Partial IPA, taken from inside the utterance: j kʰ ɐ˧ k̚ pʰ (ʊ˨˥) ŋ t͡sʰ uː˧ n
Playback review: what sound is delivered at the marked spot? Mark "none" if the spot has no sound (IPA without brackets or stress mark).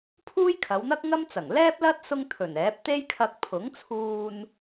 ʊ˨˥